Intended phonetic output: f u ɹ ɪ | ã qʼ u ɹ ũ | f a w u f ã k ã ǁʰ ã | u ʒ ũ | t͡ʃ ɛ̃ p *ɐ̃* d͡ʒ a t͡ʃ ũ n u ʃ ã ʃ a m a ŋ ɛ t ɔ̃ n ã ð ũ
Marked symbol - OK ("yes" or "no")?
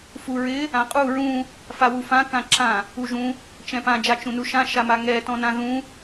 no